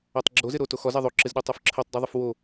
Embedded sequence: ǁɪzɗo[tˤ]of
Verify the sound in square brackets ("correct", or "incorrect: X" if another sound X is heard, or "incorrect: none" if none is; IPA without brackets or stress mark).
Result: correct